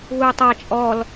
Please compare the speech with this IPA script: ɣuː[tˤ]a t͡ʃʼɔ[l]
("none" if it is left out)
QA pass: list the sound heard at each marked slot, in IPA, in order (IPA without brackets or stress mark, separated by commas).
tˤ, l